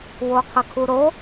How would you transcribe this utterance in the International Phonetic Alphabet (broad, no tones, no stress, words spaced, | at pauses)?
woqʰəkʰuɾo